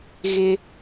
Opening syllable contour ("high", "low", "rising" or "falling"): high